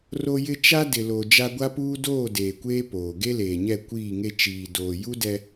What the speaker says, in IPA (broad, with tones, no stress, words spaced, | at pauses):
ro˦jɪ˦ t͡ʃa˦dɪ˨lo˨ d͡ʒa˦ ɡʷa˦puː˦ doː˦˨ deː˨kʷeː˦ poː˨ ɡe˦leː˨ɲɛ˦˨ kʷiː˦˨ŋe˦ t͡ʃiː˨ doː˨ ju˦ dɛ˦